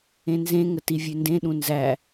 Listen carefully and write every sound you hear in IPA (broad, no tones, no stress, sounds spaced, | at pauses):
ẽ n z ẽ ŋ ə t i vʲ ʉ n d ẽ ɗ ũ n z æ